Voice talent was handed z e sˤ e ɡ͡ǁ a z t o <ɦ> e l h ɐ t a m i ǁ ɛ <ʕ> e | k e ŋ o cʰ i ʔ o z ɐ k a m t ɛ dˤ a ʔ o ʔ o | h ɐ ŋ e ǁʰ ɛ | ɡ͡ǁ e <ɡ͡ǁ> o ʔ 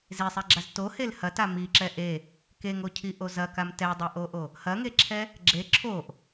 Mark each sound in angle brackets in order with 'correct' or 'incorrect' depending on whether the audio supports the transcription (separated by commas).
incorrect, incorrect, incorrect